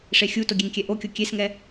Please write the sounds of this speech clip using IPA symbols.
ʂ e xʲ u t o ɡʲ e ŋ kʲ ɛ ʔ o kʲ o kʲ e s ŋ ɛ

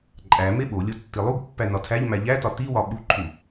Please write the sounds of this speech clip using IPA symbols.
ǃʼ æ m e ɓ o lʲ o tː i lˠ u ɡ pː æ n ɒ tʰ æ ʎ m æ ʎ æ t ɒ t i w ɒ ɓ u ǃʰ u

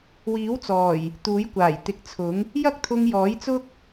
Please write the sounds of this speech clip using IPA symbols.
w iː˨˥ w t͡s ɔː˨˩ j | t̪ uː˨˥ j kʷ aː˨˩ j t̪ ɪ˨˥ k̚ t͡sʰ ʊ˨˥ ŋ | j ɐ˥ k̚ t̪ʰ ʊ˧ ŋ j ɔː˨˥ j t͡s ʊ˥ k̚

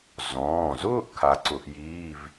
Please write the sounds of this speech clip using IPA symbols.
z ɔ̃ː˩˧˩ z ʊː˥˧ ʔ kʰ a˩˥ ǀ ʊ˨˩˦ ʔ j iː˧˥˧ v

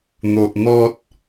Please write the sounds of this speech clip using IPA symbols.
n̪ o˨ ʔ n̪ ɔ˦ t̚

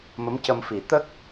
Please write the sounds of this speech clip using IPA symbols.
m ə˧˥ m c ə˧ m f i˨˩˦ t̪ ə˦˥ k̚

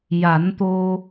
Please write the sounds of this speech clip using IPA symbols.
j a˨˩˦ n t̪ o˧

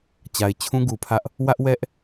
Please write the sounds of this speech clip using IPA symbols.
t͡ɕ a˨ ɪ̯ t͡ɕʰ ũ˦ ɡ u˨ pʰ ä˦ ʔ | w ä˦ ʔ w ɛ˦ ʔ

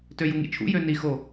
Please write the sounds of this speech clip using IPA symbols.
t ø j u ŋ ḭ t͡ʃʰ ṵ j ø n i x o

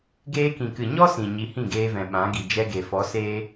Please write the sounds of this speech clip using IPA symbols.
ɡ eː˧ k ĩ˨ k ɨ˨ ɲ ɔ˦ s ĩ˨ ɲ i˧ h ĩ˦˨ ɡ eː˧ v ɛ̃˨ ɓ ã˨˦ ɡ i˨ d͡ʒ ɛ˧ ɡ e˨ f ɔ˨˦ s eː˦

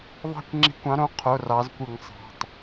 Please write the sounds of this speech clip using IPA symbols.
ðˤ ɑ̤˦˨ kʷ ŋ͡ǁ i̤˧˩˧ kʷ ɑ̃˨˦ ɾ õ˨˦ qʰ o˩˧˩ r ɑ˨˦ z kʷ ɯ˧˩˧ ŋ sˤ ɑ̤˩˧˩ tˤ

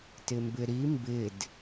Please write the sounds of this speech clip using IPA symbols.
t ɪ m b ɪ ɾ i m b ɪ d

